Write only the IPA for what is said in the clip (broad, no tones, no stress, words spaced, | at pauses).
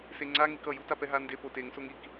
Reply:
seŋ͡ǀaŋik ʌju tapɛɦande poteŋsoŋ ik